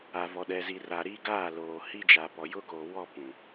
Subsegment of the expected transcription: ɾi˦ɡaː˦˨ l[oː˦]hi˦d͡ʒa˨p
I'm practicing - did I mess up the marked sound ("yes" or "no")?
yes